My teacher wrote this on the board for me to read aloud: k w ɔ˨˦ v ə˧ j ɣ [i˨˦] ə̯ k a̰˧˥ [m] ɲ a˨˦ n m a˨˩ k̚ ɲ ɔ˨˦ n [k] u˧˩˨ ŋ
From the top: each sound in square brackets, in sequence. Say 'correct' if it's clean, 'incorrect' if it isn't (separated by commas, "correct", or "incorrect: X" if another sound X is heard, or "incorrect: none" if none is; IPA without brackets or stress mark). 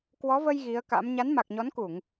correct, correct, correct